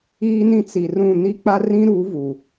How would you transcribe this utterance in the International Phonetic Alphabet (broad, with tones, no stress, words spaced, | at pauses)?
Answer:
iː˦nĩ˦ t͡si˨rũ˦˨ ni˦k͡pa˦rĩ˦ɾuː˨˦ vu˨